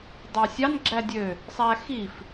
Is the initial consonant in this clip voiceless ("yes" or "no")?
no